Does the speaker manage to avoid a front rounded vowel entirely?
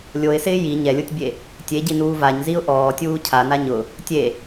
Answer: yes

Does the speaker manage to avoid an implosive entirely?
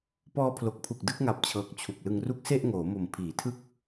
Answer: yes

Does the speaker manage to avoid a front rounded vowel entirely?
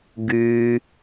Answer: no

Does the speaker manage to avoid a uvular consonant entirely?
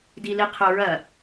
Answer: no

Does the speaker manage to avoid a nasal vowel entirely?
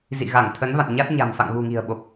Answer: yes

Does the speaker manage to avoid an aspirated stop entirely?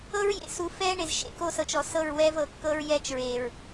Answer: yes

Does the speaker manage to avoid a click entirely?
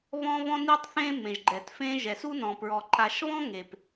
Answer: no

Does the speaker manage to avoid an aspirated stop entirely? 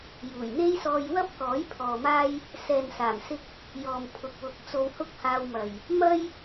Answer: no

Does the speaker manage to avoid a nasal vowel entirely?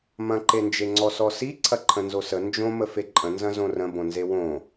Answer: no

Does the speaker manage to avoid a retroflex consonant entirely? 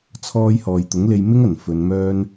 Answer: yes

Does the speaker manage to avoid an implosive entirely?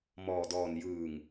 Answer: yes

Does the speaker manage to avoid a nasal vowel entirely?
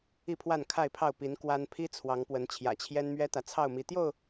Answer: yes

